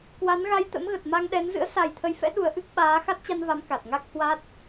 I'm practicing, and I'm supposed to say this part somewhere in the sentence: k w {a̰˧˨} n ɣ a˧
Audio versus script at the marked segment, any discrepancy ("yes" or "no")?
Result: yes